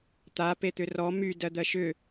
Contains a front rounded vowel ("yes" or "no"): yes